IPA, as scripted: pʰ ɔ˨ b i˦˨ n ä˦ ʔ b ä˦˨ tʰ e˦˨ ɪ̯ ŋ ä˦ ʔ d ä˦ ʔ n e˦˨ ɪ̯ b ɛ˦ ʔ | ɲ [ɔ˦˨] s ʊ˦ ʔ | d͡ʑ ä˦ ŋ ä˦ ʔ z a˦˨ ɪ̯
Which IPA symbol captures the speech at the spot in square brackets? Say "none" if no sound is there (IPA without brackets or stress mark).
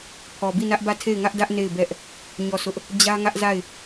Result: ɔ˦˨